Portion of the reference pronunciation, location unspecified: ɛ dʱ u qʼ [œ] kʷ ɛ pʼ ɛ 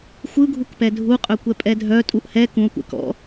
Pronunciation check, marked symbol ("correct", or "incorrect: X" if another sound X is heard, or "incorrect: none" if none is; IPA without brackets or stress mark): correct